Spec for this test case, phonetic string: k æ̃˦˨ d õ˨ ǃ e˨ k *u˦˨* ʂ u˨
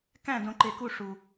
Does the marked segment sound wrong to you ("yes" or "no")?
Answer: no